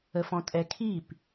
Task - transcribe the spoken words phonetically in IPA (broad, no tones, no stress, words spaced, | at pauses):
əfɔ̃tʼɛkʰip